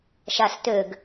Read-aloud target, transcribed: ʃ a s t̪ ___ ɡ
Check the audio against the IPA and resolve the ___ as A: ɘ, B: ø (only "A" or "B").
B